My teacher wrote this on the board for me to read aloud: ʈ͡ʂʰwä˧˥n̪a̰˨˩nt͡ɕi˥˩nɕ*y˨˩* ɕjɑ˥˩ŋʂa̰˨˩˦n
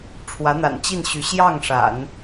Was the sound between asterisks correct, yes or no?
no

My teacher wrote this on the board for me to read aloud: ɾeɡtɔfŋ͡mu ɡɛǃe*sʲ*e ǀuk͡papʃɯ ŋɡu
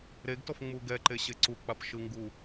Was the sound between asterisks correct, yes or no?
no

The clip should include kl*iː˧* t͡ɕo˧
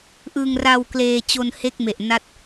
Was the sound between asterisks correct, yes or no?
no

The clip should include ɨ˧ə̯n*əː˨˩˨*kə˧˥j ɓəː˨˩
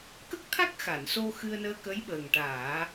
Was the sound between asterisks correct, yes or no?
no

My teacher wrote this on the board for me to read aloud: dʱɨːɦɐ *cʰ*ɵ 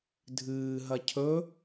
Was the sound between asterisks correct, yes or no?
yes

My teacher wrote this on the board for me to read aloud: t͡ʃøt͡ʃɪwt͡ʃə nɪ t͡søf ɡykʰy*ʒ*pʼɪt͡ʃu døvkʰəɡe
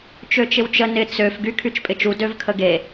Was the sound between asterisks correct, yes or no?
no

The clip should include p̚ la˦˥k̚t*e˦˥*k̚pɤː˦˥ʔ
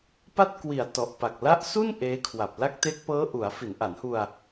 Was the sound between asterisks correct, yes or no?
yes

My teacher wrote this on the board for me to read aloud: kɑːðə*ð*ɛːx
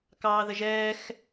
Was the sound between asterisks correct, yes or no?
no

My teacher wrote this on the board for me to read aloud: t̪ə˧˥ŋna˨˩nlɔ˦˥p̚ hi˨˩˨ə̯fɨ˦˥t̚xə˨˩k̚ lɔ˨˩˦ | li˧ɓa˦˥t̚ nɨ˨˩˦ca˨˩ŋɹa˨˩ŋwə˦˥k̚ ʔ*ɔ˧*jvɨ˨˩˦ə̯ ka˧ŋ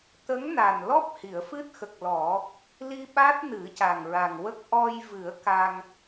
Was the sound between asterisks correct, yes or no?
yes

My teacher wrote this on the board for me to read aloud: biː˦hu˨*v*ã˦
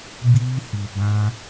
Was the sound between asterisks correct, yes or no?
no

